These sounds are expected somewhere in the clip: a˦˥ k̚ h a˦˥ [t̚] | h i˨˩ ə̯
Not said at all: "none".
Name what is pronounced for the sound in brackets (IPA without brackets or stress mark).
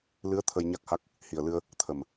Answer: k̚